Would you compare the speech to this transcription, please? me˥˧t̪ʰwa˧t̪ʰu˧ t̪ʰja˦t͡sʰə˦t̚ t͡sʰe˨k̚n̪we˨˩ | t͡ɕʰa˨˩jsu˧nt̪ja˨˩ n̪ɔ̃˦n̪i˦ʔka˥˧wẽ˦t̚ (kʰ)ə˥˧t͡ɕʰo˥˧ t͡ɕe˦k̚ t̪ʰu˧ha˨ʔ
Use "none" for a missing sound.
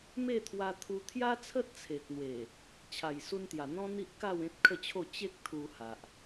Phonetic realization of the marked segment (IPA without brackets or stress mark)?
kʰ